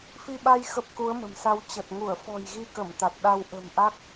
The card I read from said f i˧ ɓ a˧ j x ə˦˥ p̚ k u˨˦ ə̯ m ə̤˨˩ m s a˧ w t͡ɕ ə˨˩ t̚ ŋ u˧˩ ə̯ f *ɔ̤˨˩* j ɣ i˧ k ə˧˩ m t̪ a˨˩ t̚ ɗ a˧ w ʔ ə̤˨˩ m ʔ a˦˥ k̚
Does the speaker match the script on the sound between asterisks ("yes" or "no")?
yes